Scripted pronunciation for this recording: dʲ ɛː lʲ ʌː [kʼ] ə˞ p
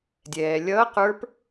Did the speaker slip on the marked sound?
yes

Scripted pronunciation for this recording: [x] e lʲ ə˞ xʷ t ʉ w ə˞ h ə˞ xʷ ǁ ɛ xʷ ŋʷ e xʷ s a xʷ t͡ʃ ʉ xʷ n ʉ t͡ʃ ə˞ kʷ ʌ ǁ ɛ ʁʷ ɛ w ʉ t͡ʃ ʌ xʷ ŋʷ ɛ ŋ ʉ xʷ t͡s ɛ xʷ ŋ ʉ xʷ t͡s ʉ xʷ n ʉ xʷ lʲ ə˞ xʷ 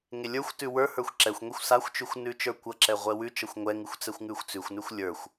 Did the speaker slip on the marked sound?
yes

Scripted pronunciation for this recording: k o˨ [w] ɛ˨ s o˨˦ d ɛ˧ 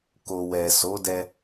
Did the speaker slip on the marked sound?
no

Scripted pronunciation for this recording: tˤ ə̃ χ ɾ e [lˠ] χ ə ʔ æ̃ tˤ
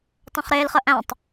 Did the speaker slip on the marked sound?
yes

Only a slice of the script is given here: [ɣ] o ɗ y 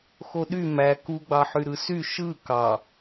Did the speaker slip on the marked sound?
yes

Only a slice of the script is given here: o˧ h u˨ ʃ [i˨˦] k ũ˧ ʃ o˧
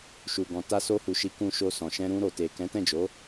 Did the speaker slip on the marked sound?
no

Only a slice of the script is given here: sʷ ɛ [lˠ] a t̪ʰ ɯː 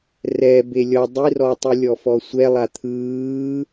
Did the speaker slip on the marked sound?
no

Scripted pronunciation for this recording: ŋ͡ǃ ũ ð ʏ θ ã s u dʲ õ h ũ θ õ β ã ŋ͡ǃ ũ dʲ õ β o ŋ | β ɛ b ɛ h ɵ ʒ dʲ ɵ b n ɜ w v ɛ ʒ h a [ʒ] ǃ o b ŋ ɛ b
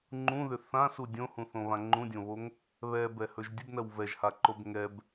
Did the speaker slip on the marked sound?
yes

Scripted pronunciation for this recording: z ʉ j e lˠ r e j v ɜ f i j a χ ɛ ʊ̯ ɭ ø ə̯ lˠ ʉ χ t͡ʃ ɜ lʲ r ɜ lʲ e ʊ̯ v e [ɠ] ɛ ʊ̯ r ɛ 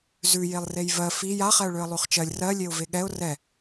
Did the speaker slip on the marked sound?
no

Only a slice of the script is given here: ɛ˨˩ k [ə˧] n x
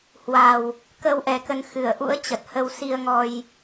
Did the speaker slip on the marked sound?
yes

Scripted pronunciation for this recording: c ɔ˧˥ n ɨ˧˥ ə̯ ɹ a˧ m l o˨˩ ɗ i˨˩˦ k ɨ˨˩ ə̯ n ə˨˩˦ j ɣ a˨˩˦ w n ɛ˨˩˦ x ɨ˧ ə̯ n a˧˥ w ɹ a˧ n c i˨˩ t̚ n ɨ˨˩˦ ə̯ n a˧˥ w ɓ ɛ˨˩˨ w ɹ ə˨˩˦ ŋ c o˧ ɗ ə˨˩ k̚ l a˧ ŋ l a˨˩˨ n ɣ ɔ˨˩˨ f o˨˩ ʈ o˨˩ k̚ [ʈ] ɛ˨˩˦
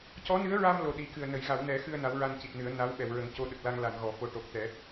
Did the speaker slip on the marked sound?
yes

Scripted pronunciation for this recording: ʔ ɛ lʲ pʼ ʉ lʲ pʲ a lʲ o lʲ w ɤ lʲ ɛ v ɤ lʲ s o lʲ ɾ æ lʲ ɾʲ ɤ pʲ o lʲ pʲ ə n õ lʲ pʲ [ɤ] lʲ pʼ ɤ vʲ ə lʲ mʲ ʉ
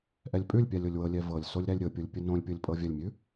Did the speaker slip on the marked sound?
no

